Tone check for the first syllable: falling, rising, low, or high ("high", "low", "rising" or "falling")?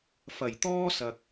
low